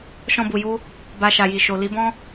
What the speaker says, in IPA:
ʃ ɔ̃˧ b u˨ j u˧ | b a˧ ʃ a˨ j i˨ ʃ o˨ l i˨˦ b ɔ̃˦

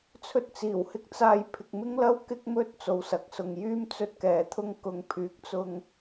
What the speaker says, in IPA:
t͡sʰ ɵ˧ t̚ t͡s iː˨˩ w h ɪ˧ k̚ t͡s aː˧ j pʰ ɪ˨ k̚ m ɪ˥ ŋ l ɐ˥ w k ɪ˥ k̚ m ɵ˥ t̚ t͡s o˨ w s ɐ˨˥ k̚ s ʊ˨ ŋ j yː˥ m t͡s ɵ˧ t̚ k ɛː˨ t̪ʰ ʊ˧ ŋ k ʊ˨ ŋ pʰ yː˨˥ k̚ t͡s ʊ˨ ŋ

